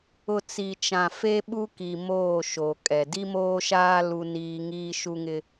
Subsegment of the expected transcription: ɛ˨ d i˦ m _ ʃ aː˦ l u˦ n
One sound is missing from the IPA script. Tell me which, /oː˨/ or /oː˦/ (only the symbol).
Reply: oː˦